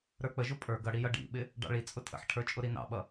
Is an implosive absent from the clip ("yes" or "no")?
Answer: no